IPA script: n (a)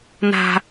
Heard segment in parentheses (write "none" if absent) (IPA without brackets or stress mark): a̤